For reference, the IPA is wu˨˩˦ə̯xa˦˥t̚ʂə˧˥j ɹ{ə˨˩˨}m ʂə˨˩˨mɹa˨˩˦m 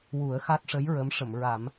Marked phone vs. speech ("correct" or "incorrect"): incorrect